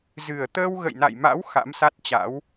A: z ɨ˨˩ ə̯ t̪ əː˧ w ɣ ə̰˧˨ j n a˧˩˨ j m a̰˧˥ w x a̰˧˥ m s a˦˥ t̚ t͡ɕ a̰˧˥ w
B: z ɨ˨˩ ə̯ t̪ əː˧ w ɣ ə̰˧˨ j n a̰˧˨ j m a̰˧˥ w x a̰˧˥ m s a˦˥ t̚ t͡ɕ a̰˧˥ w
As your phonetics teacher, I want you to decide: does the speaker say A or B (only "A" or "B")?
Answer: B